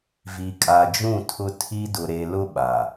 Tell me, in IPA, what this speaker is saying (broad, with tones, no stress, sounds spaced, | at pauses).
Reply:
v i˨ kʼ a˨ d͡ʒ ũ˦˨ tʰ ʊ˦ tʰ i˦ d ʊ˨ ɾ e˨ l ʊ˦ ɓ a˨